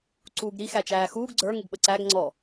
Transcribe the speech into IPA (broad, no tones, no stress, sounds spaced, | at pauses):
ǀ uː ɡ ɾ i x æ t͡ʃ æː x uː ɡ ɡ͡ǀ ə˞ ŋ ɪ ɡ ɓ ə ǀ æ ɡ ŋ͡ǀ ɔ